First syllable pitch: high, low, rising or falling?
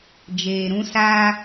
low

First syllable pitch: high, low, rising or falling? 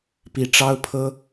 low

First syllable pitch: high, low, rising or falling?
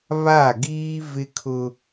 falling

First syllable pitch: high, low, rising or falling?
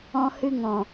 high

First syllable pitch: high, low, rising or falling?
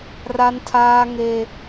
high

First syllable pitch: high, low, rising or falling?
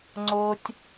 low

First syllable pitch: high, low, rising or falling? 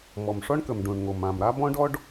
low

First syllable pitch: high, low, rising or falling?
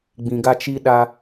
low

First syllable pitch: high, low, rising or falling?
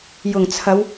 low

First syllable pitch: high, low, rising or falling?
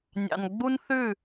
low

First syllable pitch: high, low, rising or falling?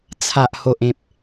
low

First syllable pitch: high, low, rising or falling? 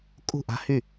falling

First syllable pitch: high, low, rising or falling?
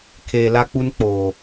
low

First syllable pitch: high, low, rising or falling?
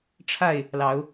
falling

